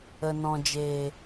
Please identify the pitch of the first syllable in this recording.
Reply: low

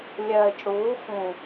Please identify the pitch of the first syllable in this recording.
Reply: low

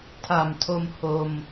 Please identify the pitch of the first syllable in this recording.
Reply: low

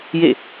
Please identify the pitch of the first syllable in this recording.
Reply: falling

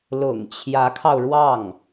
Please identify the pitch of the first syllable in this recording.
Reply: low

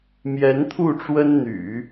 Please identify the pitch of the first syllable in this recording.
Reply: rising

